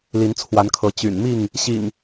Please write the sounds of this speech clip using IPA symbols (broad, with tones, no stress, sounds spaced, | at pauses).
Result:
l i˨˦ n t͡sʰ w a˨˦ n kʰ ɤ˨˦ t͡ɕ y̰˨˩ n m i˥˨ ŋ | ɕ ḭ˨˩ ŋ